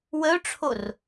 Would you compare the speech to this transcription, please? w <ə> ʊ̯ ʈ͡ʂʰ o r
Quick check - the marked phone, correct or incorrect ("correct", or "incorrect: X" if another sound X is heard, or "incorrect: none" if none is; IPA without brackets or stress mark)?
correct